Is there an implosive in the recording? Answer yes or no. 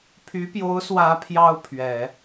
no